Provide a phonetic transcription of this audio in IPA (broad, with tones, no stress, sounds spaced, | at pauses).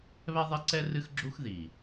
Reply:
β ɛ˦ ðˤ ɛ˦ ǀ ɛ˦ r ɨ˦ x ɡ͡ǁ u˦ x ð i˨